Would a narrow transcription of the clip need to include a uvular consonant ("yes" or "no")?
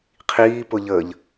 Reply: yes